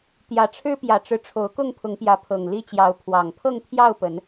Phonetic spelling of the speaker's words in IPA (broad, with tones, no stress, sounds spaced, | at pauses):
t̪ j ä˨˩ ʈ͡ʂʰ ɻ̩˦ p j ä˨˩ ʈ͡ʂ ɻ̩˦ ʈ͡ʂʰ o˨˦ ʊ̯ k ʊ˥˨ ŋ pʰ ʊ˨˦ ŋ p j ä˨˦ pʰ ɤ˨˩ ŋ l i˦ t͡ɕ j ɑ˨˦ ʊ̯ pʰ w ɑ˨˩ ŋ pʰ ɤ˥˨ ŋ t̪ʰ j ɑ˥˨ ʊ̯ p ə˨˦ n